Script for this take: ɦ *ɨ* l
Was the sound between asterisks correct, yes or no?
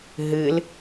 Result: yes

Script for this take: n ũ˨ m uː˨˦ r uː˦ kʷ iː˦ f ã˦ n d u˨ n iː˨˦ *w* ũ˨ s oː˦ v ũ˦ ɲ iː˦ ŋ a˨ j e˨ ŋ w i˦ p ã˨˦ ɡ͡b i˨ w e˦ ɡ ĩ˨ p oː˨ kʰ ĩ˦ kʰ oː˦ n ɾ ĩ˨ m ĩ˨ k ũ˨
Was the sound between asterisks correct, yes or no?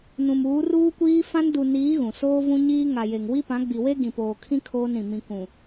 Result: no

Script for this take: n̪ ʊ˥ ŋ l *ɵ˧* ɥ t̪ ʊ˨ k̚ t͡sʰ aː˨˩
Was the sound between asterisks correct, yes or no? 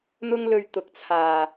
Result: yes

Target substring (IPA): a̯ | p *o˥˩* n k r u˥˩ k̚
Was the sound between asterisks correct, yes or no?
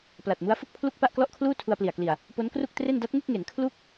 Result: no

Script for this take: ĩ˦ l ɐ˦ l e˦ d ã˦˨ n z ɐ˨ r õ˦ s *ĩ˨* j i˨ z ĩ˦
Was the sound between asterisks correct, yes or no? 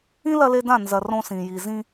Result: yes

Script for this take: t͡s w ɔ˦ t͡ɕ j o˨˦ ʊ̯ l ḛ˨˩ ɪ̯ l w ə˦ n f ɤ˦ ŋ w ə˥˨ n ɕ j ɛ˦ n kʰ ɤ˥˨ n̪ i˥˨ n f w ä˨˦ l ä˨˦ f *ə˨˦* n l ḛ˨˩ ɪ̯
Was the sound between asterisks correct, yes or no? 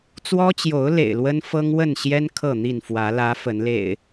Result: yes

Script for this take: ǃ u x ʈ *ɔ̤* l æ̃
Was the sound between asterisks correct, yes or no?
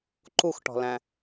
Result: yes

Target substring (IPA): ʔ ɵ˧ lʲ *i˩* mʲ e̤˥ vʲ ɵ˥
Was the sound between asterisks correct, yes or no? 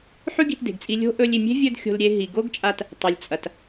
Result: yes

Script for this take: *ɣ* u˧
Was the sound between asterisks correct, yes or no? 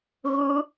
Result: yes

